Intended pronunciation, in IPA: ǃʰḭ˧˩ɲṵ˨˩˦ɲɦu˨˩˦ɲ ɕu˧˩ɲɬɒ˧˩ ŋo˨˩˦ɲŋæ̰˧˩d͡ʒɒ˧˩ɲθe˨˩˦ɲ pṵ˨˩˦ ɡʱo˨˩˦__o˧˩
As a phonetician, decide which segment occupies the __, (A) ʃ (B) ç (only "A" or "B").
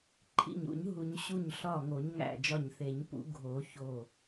B